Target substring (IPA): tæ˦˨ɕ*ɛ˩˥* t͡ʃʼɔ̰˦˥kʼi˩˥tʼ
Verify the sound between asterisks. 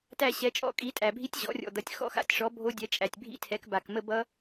correct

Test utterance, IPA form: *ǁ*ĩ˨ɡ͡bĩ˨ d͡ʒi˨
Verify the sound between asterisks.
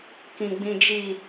incorrect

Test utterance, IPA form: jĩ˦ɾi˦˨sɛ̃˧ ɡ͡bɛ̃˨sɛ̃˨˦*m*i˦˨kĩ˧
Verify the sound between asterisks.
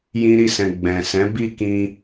incorrect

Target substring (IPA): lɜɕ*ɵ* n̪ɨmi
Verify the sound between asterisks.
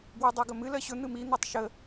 correct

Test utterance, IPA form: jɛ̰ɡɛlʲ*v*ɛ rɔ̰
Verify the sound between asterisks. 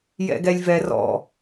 correct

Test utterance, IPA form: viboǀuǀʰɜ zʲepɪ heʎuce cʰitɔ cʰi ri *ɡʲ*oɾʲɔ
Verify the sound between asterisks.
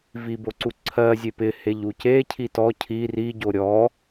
incorrect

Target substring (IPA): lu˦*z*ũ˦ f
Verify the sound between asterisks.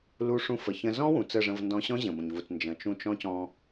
incorrect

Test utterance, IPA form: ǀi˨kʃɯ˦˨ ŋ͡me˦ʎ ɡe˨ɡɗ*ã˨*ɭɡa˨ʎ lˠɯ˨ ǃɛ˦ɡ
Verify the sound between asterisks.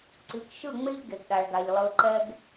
incorrect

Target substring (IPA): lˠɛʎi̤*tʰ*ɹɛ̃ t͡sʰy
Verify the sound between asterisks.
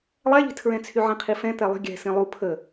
correct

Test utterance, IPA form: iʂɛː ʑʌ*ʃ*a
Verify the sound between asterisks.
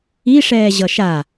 correct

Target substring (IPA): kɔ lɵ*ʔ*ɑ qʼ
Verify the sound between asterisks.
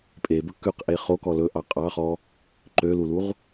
correct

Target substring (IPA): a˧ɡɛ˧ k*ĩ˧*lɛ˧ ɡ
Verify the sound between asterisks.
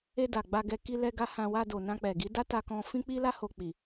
incorrect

